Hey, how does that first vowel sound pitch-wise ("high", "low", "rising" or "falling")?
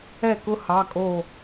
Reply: falling